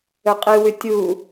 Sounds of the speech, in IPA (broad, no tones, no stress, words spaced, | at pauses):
ɵqʼɨwʉ tʲu